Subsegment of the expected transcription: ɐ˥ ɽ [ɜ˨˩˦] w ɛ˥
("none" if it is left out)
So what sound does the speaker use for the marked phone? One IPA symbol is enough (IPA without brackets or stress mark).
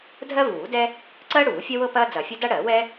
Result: ɜ˨˩˦